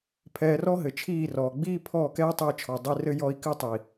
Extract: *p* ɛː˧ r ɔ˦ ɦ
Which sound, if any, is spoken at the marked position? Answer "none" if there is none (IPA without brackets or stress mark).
pʰ